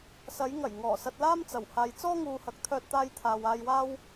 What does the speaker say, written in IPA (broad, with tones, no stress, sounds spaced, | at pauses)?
s ɐ˨˧ j ŋ ɐ˨˩ j ŋ ɔː˨˩ s ɐ˧ t̚ l aː˥ m t͡s ɐ˨˩ w h aː˨ j t͡s ɔː˥ ŋ uː˨ h ɐ˨ k̚ t̪ʰ œː˥ t̚ t̪ aː˥ j t̪ʰ aː˧ w aː˧ j w aː˥ w